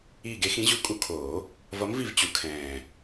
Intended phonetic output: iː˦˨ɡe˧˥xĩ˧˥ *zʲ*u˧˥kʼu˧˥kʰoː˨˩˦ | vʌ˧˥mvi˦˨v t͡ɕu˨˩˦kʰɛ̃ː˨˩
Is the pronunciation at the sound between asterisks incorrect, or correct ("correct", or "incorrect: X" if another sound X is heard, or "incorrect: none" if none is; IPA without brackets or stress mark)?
incorrect: ʑ